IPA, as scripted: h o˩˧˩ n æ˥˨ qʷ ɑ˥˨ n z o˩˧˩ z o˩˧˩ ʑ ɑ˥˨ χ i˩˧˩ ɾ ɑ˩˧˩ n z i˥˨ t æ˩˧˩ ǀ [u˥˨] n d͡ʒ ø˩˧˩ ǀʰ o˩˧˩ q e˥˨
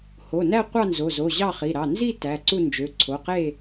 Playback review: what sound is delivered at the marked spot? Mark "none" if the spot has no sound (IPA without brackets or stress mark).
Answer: u˥˨